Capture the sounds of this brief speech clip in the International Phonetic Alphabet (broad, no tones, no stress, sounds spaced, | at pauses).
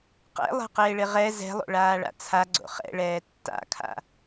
q ɛ̰ lˠ ɛ̤ q ɪː ɭ ɪ ʁ ɛ z ɛ̤ lˠ o̰ ɭ aː ɭ a̰ t͡sʰ a ɡ͡ǀ o̰ χ ɛ̰ ɭ ɛː tː a̰ kʰ a̰